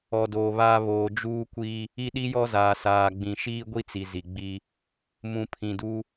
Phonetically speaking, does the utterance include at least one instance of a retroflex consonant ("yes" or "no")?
no